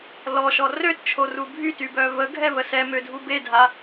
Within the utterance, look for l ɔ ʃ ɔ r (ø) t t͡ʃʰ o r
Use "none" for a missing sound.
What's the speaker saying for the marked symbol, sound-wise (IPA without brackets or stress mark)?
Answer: ø